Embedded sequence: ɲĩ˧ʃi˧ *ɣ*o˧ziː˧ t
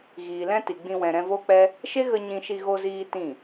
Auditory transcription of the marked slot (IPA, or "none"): ɣ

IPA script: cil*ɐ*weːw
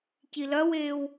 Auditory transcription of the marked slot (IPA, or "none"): ɐ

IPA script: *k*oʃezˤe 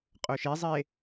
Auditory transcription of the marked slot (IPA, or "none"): qʼ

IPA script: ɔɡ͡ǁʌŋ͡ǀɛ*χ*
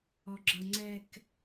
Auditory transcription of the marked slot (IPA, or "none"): k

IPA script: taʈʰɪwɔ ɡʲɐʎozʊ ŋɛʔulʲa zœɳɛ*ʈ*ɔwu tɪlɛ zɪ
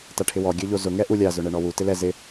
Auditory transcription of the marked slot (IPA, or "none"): ɳ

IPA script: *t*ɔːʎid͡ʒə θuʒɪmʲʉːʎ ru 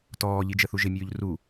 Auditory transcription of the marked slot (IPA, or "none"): t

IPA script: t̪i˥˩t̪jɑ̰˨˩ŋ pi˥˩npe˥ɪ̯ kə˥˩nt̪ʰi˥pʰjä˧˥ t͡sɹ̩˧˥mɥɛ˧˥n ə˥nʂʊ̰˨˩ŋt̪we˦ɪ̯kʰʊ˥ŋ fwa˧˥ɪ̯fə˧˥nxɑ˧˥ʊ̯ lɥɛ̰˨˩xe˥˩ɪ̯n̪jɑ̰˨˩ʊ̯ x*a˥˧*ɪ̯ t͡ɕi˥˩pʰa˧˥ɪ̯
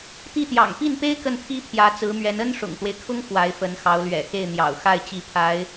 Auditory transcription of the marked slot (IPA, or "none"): a˥˧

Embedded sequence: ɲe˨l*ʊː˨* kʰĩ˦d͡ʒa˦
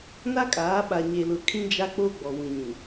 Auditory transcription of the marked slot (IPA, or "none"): ʊ˨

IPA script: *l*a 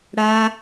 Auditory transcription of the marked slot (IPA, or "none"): ɽ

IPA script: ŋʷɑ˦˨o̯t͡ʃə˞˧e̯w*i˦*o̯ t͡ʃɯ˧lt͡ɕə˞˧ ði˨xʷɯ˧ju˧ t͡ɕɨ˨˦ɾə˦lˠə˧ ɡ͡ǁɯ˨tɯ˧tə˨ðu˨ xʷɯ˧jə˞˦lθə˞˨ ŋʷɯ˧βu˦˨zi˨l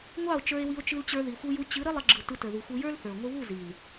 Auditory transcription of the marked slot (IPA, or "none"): i˧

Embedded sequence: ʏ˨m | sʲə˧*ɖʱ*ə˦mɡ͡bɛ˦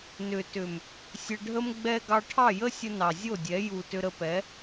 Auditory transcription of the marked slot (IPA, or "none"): ɖʱ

